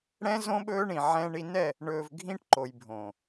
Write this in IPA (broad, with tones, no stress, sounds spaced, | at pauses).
ɽ ɛ̃˦ z õ˦ ɓ ɵː˦ ɳ ĩ˨ ʕ ɛ̃˦ ɳ i˦ n ɛ˦˨ | ɳ ɵː˨ v ɡʱ ĩ˦ ʈ ǃ o˨ j bʱ õː˨